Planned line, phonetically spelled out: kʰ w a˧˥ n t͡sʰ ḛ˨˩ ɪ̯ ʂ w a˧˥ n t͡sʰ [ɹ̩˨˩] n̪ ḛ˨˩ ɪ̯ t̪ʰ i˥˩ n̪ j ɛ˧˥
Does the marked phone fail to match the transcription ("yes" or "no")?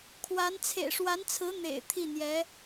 yes